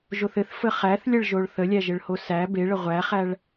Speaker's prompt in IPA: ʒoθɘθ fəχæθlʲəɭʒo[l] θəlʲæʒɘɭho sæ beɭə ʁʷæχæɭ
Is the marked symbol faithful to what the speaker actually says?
no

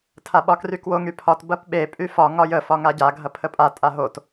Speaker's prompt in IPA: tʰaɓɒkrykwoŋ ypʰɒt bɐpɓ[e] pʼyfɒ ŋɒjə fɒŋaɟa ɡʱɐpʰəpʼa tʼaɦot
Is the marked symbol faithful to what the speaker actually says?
yes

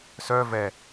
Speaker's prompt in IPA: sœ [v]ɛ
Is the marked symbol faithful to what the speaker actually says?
yes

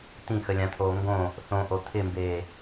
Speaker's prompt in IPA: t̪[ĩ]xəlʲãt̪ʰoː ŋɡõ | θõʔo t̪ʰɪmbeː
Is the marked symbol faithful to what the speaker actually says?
yes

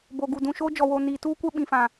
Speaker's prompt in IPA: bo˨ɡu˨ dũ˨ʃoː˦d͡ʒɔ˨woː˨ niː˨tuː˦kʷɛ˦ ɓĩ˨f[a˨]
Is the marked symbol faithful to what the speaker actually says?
no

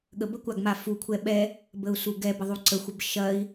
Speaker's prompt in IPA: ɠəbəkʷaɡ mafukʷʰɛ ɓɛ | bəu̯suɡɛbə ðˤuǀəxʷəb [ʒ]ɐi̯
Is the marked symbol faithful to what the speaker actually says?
no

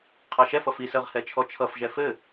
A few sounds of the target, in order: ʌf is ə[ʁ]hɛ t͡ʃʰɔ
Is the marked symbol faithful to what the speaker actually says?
yes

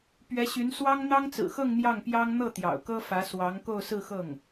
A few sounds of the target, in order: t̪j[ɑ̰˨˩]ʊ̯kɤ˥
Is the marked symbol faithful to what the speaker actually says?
yes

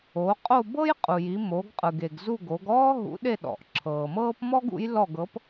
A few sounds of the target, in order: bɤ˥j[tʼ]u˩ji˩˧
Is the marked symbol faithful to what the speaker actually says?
no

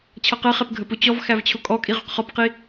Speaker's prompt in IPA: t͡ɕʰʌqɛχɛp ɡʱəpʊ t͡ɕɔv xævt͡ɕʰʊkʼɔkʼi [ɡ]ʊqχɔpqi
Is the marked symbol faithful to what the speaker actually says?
no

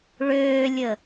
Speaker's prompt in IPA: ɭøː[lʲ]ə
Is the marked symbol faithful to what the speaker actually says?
yes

